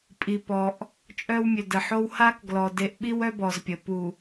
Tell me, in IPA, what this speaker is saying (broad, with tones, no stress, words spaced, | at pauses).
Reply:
pʼi˨pɔ˨ʔ | t͡ʃʼœ˦wmʲø˨də˨ħo˦w ha˦k ɡlɔ˨ de˨˦ʔɓi˦wœ˦ bɔ˨zpʲə˨ pu˨